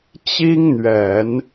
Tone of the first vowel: high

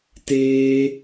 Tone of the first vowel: high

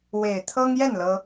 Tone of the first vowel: low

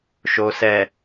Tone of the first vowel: low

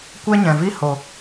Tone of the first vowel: high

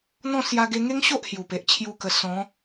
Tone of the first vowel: falling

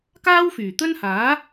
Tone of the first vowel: high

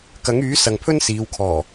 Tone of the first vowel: rising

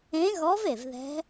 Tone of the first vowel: rising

